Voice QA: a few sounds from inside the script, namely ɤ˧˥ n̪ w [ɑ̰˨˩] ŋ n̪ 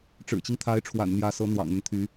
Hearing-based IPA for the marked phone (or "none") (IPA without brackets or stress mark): ɑ̰˨˩